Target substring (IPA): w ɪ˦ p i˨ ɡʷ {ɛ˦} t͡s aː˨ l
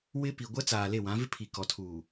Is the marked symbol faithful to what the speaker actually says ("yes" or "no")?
yes